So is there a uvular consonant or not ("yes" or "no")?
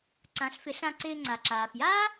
no